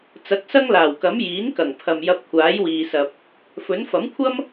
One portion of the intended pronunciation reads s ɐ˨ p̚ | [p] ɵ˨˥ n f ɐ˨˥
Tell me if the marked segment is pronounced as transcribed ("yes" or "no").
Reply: no